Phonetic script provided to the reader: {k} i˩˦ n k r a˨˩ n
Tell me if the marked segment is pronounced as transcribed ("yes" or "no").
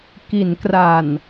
yes